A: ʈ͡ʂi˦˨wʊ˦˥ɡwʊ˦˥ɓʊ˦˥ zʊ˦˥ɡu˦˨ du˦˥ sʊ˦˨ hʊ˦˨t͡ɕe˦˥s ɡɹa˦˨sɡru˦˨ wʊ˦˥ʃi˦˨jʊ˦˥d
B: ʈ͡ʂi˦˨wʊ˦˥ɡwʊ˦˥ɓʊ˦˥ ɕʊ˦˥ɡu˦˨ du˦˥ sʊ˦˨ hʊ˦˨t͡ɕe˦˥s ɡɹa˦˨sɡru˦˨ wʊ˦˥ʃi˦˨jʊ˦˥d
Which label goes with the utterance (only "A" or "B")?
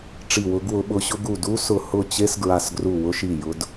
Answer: B